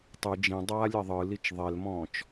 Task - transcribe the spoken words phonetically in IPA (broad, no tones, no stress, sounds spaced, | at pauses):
tˤ ɯ d͡ʒ ĩ dˤ aː lʲ ɐ ðˤ ɯ l i t͡ʃ ðˤ e l m ɔ̃ː t͡ʃ